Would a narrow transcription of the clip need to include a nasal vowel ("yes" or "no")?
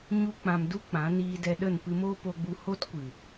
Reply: yes